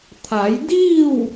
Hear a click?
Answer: no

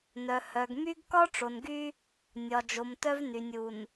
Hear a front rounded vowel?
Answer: yes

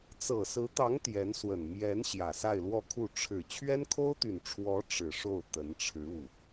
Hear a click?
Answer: no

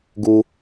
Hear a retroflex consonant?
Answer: no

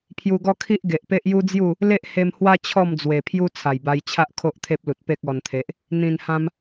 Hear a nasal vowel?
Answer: yes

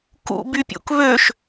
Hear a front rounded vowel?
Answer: yes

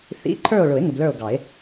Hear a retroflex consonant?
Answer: yes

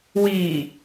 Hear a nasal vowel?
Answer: no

